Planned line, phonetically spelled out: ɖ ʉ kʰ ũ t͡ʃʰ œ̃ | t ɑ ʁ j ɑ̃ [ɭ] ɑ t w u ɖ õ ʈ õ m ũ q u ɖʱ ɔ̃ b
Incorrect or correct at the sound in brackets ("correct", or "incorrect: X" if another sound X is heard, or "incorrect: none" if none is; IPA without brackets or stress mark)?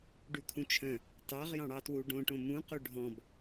incorrect: ɽ